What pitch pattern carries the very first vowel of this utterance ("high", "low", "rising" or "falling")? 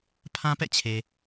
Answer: high